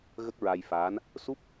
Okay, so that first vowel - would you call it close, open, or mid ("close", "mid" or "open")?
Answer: mid